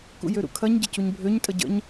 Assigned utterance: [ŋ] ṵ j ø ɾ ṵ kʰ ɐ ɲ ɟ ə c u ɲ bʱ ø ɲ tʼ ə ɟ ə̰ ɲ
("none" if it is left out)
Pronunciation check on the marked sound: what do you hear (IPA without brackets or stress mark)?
k